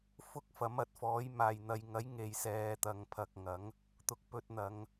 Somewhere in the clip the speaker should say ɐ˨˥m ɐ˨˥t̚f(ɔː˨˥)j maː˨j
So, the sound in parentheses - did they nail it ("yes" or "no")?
yes